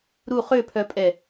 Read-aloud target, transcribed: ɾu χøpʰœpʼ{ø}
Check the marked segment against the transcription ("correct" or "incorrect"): incorrect